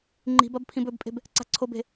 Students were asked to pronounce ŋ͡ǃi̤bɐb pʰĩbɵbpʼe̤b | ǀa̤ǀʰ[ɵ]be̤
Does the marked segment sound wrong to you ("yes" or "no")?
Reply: yes